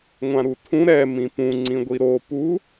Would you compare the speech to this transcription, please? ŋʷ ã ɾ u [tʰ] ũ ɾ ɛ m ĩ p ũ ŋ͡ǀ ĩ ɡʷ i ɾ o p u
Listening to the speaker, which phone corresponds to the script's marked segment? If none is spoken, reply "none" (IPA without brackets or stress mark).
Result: tʰ